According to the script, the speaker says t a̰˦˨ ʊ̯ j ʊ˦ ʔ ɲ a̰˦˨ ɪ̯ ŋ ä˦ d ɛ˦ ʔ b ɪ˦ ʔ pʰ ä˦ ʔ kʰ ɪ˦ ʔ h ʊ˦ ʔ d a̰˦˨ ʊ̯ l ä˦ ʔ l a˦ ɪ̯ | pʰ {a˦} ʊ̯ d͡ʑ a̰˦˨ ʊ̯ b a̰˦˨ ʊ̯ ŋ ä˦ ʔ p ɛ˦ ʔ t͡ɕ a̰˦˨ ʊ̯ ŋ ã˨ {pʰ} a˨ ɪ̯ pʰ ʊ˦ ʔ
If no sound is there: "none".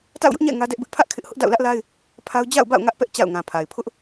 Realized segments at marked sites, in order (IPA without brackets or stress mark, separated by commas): a˦, pʰ